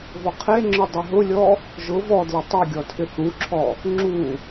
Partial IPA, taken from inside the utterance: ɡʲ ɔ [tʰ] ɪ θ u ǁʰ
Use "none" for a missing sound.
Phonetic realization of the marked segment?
tʰ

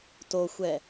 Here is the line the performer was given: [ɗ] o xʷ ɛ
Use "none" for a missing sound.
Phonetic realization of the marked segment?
t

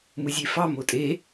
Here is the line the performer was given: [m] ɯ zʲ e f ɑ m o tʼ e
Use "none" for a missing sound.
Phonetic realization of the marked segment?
m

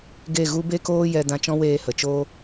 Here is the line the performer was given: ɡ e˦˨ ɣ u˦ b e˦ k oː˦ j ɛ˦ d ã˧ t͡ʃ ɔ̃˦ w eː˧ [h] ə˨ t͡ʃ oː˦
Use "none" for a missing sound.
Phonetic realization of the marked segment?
h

